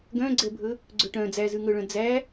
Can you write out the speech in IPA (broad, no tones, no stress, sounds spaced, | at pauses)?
ɡ œ̃ ɡ͡ǀ ɛ bʱ ɵ | ɡ͡ǀ ɵ ʈ œ̃ d͡z æ z ʉ ŋ ɵ ɭ œ̃ d͡z æ